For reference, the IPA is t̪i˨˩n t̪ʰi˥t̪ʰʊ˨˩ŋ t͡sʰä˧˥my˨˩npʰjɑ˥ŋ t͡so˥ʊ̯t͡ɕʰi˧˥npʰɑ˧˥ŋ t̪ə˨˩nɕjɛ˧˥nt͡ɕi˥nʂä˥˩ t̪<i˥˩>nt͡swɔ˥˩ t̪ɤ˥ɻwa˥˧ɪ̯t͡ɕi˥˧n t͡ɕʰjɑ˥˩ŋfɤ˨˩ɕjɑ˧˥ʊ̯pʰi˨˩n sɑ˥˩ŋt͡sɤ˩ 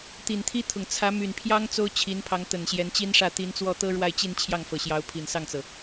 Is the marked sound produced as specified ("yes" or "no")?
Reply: no